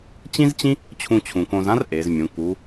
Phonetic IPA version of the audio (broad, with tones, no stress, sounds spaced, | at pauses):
t͡ɕ ĩ˥ z t͡ɕ ĩ˥ | t͡ɕʰ ũ˧ t͡ɕʰ ũ˩ k õ˧ z ã˥ r ʔ e˩˧ z mʲ ũ˩˧ k u˩˧